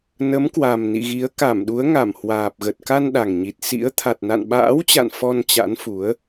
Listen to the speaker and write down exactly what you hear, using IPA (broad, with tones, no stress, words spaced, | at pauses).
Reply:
nə˨˦mkwa˨˩mnḭ˧˨ɣi˨˦ə̯ ka˧˩mɗu˨˦ə̯ŋa˧˩mhwaː˨˩p̚ ɣə˨˩t̚ka˧nɗa˨˩ŋɲi˨˩t̚ sḭ˧˥ə̯ t̪ʰa˨˩t̚na̰˧˨nɓa̰ː˧˥wt͡ɕa̰˧˨n fɔ˧nt͡ɕa̰˧˥nfu˨˦ə̯